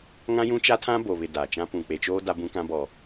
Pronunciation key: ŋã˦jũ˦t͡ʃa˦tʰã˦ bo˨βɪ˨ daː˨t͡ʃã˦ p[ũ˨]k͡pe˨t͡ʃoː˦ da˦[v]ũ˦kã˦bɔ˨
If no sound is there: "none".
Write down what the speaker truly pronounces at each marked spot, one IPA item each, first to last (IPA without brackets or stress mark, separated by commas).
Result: ũ˨, b